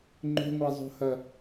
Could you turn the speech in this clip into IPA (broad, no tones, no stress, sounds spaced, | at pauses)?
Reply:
ŋ͡ǃ o̤ ŋʷ a zˤ o̤ h ɐ